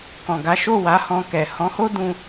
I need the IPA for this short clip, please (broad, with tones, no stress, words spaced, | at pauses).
kɔ̃˨ɡa˨˦ ʃo˦˨wa˨˦hɔ̃˧kɛ˨ hɔ̃˨˦ho˦ dũ˦